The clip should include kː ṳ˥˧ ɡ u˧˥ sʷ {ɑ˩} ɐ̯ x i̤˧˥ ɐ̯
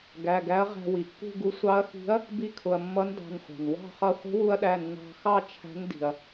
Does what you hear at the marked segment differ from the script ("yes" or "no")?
yes